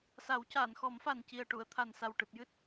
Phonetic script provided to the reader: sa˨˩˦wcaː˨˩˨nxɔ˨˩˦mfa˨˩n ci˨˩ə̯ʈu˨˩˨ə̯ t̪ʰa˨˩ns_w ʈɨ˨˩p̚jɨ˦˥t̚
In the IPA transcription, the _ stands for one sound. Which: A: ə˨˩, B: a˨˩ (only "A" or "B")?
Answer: B